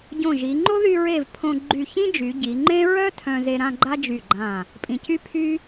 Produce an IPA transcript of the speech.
ɟ õ˧˩ ʒ i˩˧ ŋ͡ǃ o˥ ð y˧ ɹ e˧˩ v pʰ õ˧ ɡ͡ǃ y˧˩ ç ĩ˥ d͡ʒ y˩˧ ɟ i˩˧ ŋ͡ǃ ẽ˥ ɹ œ˥ tʰ œ̃˧ z e˧ ɾ ã˥˧ ɡ͡ǃ a˥ d͡ʒ y˧˩ ɡ͡ǃ ã˧˩ | pʼ ĩ˧˩ c y˥ pʰ y˥

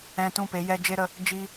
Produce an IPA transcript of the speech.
ɛ̃˧ t ũ˦˨ p e˨˦ j ɛ˧ d͡ʒ e˦ ɾ ə˧ | d͡ʒ i˦

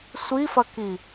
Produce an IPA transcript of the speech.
sʷ i f ɐ k i

